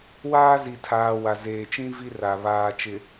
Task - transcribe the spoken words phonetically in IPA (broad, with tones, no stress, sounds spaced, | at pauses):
w aː˦ z i˨ tʰ aː˨ w a˨ z eː˨ t͡ʃ ĩ˦ v i˦ r a˨ β aː˨ t͡ʃ ɪ˨